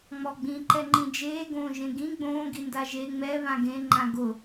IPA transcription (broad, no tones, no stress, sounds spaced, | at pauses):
ŋ͡m ɔ ɡ͡b ĩ ǃ ɛ ŋ͡ǃ ĩ d͡ʒ eː ɡ õː ʒ ẽ ɡ ĩ ɡ͡b õː ɡ i n d a ʒ e ŋ͡m ɛ β ã ɡ ẽ ŋ͡ǃ ã ɡ ʊ